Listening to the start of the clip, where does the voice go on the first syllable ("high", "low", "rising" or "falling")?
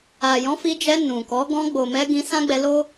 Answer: low